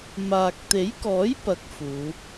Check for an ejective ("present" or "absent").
absent